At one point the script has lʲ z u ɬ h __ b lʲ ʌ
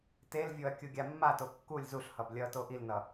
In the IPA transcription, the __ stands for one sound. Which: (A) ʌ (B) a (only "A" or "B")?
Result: A